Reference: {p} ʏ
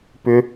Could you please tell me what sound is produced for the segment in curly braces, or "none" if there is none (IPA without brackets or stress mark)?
p